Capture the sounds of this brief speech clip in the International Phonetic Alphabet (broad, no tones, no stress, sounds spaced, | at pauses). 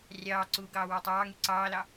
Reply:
rʲ ɑː ǀ uː ɡ ɑː w æ tˤ ɑː ŋ y ǀ ɑː l ɑ